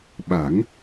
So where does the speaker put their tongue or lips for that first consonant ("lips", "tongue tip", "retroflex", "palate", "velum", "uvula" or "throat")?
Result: lips